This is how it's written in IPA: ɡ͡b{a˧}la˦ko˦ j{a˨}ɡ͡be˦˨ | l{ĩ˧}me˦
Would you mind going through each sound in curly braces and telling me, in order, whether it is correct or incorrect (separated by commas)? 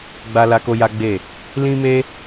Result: incorrect, incorrect, incorrect